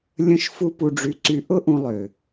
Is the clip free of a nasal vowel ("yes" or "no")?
no